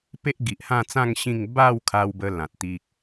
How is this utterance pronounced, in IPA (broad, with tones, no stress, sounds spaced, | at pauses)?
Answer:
p e˦ ʔ ɡ i˨ ʔ h ã˥˧ t͡s ã˥˧ ŋ ɕ ĩ˥˧ ŋ b a˥˧ w kʰ a˧ w b ə˧ l ã˨ t̚ t̪ i˦ k̚